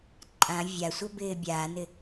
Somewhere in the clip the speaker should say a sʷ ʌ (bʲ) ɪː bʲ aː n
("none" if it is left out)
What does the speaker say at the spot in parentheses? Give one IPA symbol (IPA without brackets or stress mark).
b